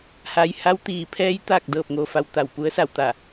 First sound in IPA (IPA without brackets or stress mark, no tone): h